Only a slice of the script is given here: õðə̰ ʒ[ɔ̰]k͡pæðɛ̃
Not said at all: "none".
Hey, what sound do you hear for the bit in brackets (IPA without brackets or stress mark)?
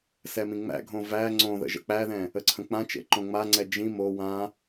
ə̰